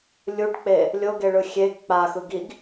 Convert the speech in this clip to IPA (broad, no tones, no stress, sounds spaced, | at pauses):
lʲ u ɖ k͡p e | lʲ o ɡ e ɭ ɯ xʲ e ɡ k͡p a x ɯ ɡ i ɡ